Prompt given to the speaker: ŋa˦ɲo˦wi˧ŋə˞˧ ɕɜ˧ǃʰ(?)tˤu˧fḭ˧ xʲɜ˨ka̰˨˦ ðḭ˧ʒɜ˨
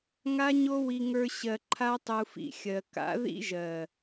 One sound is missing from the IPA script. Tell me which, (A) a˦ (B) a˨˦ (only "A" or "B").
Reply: A